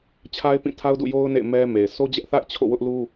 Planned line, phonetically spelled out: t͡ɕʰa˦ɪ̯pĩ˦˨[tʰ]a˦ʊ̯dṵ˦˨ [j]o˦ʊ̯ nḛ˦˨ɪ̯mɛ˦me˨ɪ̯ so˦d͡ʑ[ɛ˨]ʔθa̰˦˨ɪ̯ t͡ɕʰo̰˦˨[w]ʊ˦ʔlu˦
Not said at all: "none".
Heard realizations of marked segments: tʰ, j, ɛ˦, w

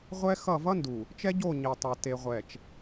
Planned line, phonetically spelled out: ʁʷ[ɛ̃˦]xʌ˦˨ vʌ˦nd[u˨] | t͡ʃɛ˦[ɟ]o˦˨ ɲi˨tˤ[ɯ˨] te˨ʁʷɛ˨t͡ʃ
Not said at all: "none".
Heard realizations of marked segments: ɛ˦, u˨, ɟ, u˨

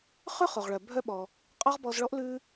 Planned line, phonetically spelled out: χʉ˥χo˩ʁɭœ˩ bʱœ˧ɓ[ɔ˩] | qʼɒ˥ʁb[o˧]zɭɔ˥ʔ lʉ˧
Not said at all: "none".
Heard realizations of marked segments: ɔ˩, ɔ˧

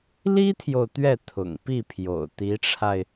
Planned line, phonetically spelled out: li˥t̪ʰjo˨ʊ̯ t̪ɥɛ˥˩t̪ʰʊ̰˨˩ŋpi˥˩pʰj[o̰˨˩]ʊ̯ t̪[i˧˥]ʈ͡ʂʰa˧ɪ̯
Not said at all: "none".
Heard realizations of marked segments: o̰˨˩, i˧˥

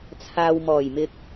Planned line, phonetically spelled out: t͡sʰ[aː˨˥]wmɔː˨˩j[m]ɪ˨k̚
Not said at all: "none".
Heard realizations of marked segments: aː˨, m

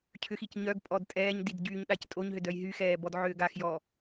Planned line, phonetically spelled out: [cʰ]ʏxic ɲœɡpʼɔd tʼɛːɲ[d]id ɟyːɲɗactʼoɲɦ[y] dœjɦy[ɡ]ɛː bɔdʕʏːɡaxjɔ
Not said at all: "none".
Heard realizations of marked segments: cʰ, d, ʏ, x

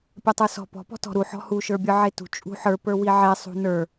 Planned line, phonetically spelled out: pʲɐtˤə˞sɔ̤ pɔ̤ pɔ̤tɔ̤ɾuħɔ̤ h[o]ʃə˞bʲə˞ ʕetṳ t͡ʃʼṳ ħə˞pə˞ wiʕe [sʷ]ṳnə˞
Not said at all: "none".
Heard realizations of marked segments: u, sˤ

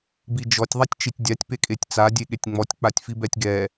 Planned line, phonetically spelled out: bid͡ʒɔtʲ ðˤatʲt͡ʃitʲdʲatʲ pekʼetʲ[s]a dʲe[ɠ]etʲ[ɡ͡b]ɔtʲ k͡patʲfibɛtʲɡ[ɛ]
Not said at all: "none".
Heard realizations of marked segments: t͡s, ɠ, ŋ͡m, ɛ

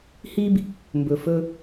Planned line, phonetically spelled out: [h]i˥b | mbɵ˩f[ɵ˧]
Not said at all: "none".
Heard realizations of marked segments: h, ɵ˧

